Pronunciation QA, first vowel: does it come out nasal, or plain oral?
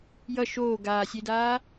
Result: oral